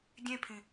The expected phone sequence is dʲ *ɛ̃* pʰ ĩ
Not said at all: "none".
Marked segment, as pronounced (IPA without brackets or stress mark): ẽ